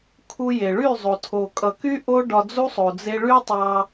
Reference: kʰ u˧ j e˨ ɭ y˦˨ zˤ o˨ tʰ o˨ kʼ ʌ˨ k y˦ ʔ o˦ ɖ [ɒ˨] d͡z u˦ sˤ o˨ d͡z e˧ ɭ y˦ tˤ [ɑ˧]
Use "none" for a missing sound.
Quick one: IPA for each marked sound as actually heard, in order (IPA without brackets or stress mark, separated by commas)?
ɒ˧, ɑ˧